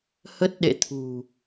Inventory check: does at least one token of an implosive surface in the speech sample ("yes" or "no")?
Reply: yes